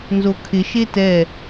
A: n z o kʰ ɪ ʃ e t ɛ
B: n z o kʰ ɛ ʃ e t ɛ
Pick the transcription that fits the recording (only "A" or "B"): A